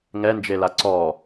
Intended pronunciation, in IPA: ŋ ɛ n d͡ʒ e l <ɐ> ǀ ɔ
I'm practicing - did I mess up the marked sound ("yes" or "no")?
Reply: yes